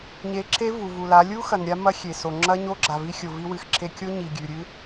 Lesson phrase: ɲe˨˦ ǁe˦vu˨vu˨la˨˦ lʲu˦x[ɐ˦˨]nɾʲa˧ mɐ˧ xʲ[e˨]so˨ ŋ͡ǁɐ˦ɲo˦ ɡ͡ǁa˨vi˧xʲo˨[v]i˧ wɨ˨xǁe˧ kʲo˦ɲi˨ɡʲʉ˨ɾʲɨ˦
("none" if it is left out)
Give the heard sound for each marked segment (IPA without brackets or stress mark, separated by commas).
ɐ˨, e˨, v